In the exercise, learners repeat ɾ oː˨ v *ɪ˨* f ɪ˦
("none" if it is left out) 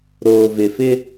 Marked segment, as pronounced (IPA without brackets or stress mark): ɪ˨